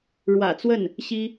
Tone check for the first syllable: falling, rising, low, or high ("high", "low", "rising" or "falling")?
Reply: low